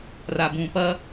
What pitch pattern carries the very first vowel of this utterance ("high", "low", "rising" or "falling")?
low